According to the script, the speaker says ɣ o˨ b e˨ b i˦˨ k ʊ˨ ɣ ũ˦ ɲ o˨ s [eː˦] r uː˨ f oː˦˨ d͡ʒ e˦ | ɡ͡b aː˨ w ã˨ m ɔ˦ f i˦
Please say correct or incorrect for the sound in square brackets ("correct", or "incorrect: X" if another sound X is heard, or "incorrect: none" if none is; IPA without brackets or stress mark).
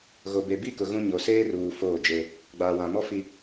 correct